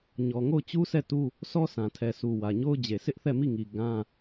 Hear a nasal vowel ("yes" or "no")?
yes